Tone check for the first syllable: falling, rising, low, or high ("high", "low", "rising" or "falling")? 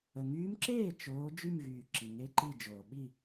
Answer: low